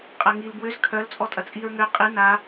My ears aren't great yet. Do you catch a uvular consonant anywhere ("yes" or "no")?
yes